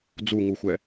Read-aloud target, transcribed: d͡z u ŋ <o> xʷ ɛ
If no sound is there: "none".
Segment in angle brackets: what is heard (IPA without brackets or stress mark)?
u